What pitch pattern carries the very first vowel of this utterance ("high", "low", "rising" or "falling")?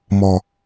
low